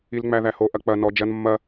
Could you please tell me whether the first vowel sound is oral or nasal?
oral